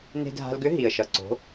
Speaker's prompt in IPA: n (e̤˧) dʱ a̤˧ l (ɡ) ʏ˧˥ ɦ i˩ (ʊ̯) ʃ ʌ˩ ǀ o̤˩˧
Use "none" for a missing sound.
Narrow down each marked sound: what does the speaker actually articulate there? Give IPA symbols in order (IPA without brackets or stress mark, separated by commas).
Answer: e̤˧, ɡ, ə̯